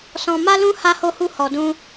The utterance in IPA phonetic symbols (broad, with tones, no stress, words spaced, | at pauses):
sɔ̃˧ ma˦lũ˦ ha˦ho˦hu˦ hɔ˧dũ˦